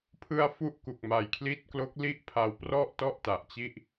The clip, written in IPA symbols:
pʰɯ˧a̯ fu˥˩ʔku˨˩k̚ ma˨˩jkʰli˦˥t̚klo˦˥k̚li˥˩ʔ pʰa˧wprɔ˥˩ʔtɔ˥˩ʔ ta˨˩ʔt͡ɕi˥˩ʔ

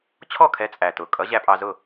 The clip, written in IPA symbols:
t͡ɕʰɔ˥˩kʰɛ˩˥ t͡sʼæ˩tʊː˩kʼʌ˩˥ ʑæ˧pʼɑ˧zʊ˥˩

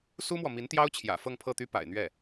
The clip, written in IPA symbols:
su˥mwɔ˨ mi˧˥nt̪jɑ˥ʊ̯t͡ɕʰjä̰˨˩ fɤ˥˧ŋpʰɤ˥˩t̪y˥ pa̰˨˩ɪ̯n̪ɥɛ˥˩

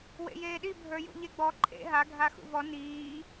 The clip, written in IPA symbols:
wḛjeːɗi bʱə˞jṵʎeɡ͡bɔ ǃʰḛ ɦa ɡʱaxṵvɔ niː

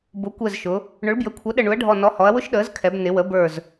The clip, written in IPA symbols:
bʊ˩˥kʷɛ˧˩zʃʊ˩˧ | ɳʊ˩˥ɭbjə˩˥kʷʰʌ˩˥ ɗə˧˩ɳu˩˥ɐ̯ɖʱɔ˧˩ nɔ˩˥hɔ˩˧ɐ̯ wʊ˦˥ʃɗəː˩˥zkʰɛ˩˧b nɪ˩˧wə˩˥bə˞˧˩z

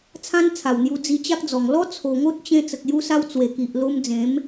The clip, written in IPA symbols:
t͡sʰã˦nt͡sʰa˨˩wn̪ju˧ d͡zi˧t͡ɕa˦k̚d͡zɔ˨˩ŋ lɔ˦t͡sʰo˨˩ŋo˦t̚t͡ɕẽ˧ t͡sə˨k̚ju˧sa˧w t͡swe˨˩ki˨ʔlo˧md͡zẽ˨˦m

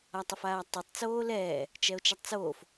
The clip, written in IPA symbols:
atˤɐfaːtˤotˤ t͡soːlɛː | t͡ʃɛo̯t͡ʃɛtˤt͡soːf

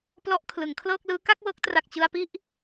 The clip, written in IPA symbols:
plɔ˦˥ʔkʰlɯ˩˦ŋkʰlɤː˥˩k̚lɯː˦˥ ka˥˩k̚wɤː˦˥k̚tra˨˩k̚ t͡ɕɯ˧a̯pi˥˩ʔ

